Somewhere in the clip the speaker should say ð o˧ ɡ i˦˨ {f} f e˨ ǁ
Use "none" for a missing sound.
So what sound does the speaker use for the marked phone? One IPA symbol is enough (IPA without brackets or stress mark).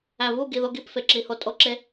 p